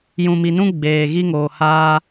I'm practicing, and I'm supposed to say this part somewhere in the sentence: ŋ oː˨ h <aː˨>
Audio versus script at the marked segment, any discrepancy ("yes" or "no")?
yes